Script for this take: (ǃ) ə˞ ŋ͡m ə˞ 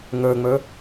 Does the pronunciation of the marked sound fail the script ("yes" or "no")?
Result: yes